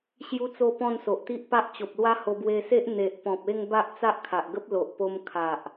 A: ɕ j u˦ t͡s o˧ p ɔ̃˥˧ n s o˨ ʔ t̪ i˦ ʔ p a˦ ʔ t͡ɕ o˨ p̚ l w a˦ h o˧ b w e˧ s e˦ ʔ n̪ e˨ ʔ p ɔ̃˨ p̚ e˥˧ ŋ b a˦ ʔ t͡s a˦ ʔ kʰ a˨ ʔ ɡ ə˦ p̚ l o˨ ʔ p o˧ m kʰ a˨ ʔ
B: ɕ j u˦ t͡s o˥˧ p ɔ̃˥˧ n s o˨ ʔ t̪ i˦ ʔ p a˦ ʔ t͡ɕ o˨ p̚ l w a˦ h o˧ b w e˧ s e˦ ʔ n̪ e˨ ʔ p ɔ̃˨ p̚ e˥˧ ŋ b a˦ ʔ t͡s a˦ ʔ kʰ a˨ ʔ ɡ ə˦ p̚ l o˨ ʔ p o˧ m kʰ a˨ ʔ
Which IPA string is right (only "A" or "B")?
B